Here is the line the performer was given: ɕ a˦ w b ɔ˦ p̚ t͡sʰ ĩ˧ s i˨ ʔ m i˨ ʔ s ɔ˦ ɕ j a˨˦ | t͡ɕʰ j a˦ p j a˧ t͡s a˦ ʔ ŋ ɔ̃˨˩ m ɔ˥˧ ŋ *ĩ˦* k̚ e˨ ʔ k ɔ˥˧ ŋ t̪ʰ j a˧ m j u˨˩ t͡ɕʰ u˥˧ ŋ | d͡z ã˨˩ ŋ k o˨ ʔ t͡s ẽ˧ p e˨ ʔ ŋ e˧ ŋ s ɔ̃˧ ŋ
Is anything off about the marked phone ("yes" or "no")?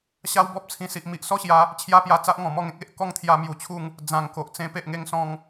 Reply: yes